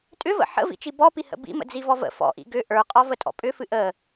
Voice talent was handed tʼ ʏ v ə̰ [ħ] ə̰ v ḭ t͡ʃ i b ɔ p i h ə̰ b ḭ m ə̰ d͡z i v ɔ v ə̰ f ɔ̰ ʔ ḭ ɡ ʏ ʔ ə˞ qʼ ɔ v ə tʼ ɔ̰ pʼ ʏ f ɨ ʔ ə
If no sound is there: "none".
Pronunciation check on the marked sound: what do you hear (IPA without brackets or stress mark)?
ħ